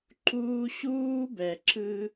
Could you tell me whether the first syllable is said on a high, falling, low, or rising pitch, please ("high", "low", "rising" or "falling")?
high